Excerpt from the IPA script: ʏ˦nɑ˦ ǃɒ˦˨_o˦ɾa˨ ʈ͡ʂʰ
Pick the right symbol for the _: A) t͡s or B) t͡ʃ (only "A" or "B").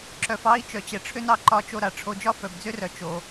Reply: B